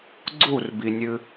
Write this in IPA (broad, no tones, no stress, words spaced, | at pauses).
ɡ͡ǀurbinʲɨ